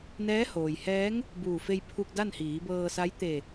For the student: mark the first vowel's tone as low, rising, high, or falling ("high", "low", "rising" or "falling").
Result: rising